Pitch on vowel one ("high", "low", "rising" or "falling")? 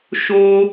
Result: high